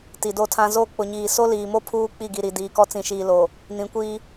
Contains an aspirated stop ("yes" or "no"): yes